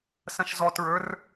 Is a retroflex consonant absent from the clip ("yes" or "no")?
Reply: yes